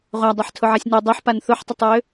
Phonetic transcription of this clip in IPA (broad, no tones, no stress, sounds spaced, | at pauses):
ʁʷ a dˤ ɛ ħ tʰ ʊ ʕ a sʲ n ø dˤ œ ħ p a n θ ʊ ħ tˤ ʏ tˤ j ø